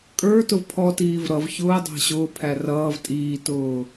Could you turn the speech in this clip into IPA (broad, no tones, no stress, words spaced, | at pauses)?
kʼə˞tʊv pʰɔtiːv ɾʌv çʊːdˤæ̤ ɕʊːpʰæ rʌːv tʼiːtʊː